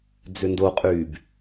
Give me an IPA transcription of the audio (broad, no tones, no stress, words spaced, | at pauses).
d͡zʏndoqʼyːb